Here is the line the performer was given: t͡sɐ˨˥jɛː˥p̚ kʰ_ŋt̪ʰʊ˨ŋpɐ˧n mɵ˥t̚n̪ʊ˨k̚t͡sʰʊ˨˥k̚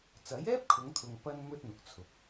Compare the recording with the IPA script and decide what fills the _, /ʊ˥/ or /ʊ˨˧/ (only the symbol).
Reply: ʊ˨˧